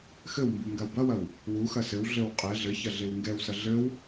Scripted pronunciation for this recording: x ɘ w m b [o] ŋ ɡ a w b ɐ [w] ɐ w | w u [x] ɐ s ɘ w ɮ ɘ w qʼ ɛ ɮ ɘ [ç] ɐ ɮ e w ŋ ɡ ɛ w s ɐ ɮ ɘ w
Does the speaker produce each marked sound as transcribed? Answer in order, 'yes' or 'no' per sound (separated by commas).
no, yes, yes, yes